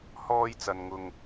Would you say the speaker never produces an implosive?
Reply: yes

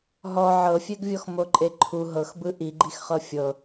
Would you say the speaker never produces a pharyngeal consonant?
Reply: no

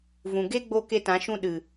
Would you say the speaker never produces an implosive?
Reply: no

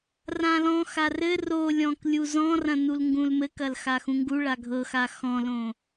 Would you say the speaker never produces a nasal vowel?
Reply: no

